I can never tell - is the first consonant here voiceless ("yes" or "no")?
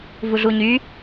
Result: no